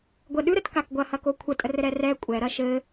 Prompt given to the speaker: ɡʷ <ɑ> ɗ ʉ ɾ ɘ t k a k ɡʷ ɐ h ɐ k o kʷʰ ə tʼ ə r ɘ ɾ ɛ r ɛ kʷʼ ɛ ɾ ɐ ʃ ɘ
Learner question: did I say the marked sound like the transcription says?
no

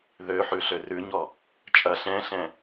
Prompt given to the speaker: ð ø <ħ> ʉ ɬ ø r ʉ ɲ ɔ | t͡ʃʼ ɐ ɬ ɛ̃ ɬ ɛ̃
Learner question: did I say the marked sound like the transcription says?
yes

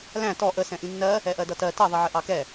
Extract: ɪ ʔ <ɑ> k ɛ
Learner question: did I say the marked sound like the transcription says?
yes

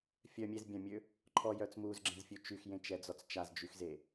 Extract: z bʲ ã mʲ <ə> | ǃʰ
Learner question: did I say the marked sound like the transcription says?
no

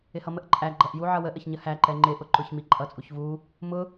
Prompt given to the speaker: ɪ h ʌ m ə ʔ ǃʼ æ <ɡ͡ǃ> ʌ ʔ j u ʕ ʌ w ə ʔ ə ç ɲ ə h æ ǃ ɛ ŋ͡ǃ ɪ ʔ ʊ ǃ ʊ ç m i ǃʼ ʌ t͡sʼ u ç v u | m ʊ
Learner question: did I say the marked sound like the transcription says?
yes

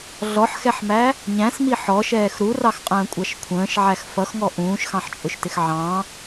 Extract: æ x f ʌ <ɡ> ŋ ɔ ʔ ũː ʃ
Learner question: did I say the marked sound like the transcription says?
no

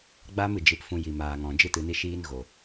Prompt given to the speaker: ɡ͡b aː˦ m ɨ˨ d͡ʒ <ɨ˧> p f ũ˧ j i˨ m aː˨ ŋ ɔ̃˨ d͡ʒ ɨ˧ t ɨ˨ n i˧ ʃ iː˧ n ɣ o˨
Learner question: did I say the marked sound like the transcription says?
yes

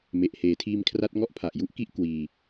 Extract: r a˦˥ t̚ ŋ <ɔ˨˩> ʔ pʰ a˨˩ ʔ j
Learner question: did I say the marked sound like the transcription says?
no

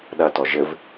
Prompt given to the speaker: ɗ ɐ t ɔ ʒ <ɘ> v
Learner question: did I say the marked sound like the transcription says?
yes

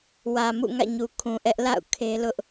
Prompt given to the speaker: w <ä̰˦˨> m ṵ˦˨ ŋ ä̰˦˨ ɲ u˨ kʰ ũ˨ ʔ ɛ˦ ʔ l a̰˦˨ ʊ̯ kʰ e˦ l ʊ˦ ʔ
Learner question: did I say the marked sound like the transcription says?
no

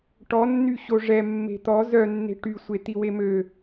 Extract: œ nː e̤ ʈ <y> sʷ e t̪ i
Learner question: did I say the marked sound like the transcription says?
yes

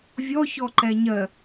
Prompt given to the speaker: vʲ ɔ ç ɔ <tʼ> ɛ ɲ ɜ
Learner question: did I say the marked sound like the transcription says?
no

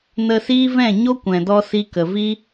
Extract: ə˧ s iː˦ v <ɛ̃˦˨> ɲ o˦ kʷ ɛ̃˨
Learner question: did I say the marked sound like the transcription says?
yes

